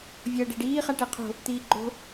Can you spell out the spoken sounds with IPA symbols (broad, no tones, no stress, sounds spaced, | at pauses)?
vʲ ʌː ɖ ɛ ɖ iː χ a ʈ ɛ qʰ o̤ | t̪ iː ɡ͡ǃ o̤